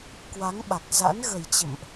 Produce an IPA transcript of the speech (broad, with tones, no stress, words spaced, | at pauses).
kwa˨˦ŋɓa˨˩k̚za̰˧˥n ɣə˨˩jt͡ɕə̰˧˨mʔ